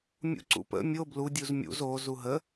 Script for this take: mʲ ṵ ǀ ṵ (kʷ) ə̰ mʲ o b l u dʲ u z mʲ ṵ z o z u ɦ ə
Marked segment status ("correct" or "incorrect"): incorrect